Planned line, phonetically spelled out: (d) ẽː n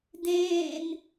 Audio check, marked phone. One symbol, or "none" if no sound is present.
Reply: d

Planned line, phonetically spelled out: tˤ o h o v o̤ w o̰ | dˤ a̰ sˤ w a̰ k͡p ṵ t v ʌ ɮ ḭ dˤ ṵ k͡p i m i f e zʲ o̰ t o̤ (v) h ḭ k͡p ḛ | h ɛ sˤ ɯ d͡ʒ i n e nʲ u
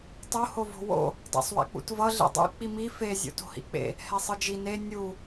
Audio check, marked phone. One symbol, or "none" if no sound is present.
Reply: none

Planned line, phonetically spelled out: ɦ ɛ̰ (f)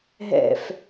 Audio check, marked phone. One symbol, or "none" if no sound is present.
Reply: f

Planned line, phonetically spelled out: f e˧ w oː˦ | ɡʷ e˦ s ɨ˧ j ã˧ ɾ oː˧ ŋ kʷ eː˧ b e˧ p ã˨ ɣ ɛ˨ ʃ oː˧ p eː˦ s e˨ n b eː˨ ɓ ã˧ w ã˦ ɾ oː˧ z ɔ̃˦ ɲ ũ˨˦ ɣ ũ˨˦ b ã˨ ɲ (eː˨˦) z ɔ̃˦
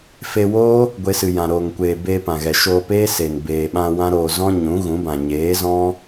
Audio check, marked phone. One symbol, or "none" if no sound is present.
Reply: eː˨˦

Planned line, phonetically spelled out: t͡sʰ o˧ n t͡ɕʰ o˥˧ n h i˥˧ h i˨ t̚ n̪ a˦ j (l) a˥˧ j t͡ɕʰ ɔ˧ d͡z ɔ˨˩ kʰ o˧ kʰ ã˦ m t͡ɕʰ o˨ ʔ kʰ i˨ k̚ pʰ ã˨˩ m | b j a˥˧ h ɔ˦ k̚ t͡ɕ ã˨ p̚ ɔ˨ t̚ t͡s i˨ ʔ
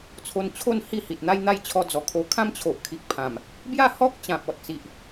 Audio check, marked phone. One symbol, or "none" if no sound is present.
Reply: n̪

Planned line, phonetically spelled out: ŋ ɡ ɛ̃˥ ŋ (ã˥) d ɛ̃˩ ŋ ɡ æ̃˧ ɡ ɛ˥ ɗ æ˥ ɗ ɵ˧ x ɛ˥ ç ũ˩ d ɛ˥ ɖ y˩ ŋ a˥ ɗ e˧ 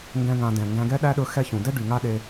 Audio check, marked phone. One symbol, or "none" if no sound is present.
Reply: ã˧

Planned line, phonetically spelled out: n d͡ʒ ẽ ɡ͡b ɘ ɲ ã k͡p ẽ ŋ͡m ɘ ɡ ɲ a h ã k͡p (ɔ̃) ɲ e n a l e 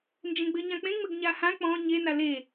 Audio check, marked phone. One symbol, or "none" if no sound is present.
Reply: ɔ̃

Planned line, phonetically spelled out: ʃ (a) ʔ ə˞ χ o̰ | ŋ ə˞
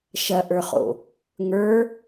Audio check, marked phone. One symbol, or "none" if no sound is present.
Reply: ɐ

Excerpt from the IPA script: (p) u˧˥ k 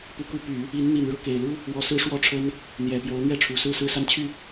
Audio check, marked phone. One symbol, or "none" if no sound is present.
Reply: p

